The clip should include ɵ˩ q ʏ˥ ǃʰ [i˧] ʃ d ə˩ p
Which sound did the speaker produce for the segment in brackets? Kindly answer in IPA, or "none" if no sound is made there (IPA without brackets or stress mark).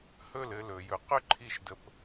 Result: i˧